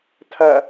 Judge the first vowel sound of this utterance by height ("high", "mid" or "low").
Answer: low